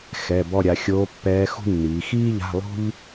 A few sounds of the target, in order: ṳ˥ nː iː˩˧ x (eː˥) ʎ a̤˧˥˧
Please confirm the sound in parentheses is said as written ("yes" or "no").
no